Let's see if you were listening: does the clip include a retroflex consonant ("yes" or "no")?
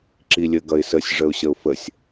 yes